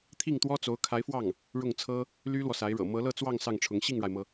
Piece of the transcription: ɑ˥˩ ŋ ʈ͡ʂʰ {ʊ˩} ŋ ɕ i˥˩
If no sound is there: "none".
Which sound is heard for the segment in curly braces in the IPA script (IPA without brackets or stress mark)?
ʊ˧˥